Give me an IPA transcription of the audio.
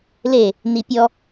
l e | n i pʲ ɔ

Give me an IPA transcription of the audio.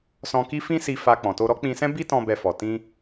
s ɔ̃˧ k i˦ f ĩ˦ s i˧ f a˧ k͡p ɔ̃˨ t o˧ ɾ ɔ˦ k͡p ĩ˧ s ɛ̃˦ b i˦ t ɔ̃˧ b ɛ˧ f ɔ˨ t ĩ˧

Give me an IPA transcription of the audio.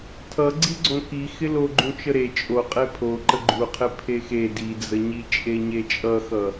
tʰ ʌ ɡ͡ǀ i ɡ͡ǀ õ k i x ɪ l o ɡ͡ǃ ũ t͡ʃ ə ɾ e t͡ʃʼ o qʼ e pʰ o ǃ ə ɡ͡ǃ u qʰ ɪ pʰ e x e d i d͡z ə ɲ i t͡ʃʼ e ɲ e t͡ʃʼ ʌ x ʌ

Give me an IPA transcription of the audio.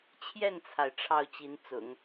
t͡ɕʰ j ɛ˥˩ n t͡sʰ a˩ ɪ̯ ʈ͡ʂʰ ɑ˥˩ ʊ̯ t͡ɕ i˧˥ n t͡s ʊ̰˨˩˦ ŋ

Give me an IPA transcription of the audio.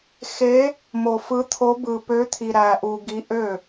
x e˧˥ | m o˧ f ɯ˧˥ t̪ʰ o˧˥ b ɯ˧ p ø˧˥ t̪ʰ i˧ ɾ æ˧ ʔ u˧ ɡ i˧˥ ʔ ø˥˨

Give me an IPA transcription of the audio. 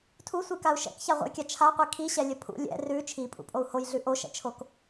tʰ u sʷ i k a u̯ ʃ ɛ̰ k ç a ʁʷ ɛ̰ j kʲ a t͡ʃʰ a qʷ i kʰ i ɕ ɛ lʲ ə pʰ ṵ lʲ ɛ̰ r ʉ t͡ʃʰ i pʼ ṵ pʼ o u̯ h o j ɮ ʉ ʔ o ʃ ɛ̰ t͡ʃʰ o k

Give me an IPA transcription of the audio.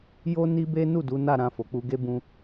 j o˦ n i˦ b e˦ n u˦˨ d u˨˦ n a˦˨ ɾ ã˧ f o˨ k͡p u˧ ɡ e˦ b ũ˧

